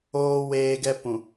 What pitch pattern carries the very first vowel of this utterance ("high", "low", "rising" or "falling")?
high